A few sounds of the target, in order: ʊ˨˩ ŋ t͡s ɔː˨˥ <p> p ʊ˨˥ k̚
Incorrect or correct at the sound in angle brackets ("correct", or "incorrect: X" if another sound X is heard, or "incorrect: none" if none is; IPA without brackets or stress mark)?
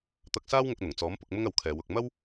incorrect: m